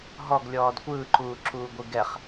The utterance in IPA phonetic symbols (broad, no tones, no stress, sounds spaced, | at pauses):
ɦ ɔ ɡ lʲ ɔː d kʷ ɯː ǃ uː ǁ uː ɡʷ ɯ ɡ ɛ χ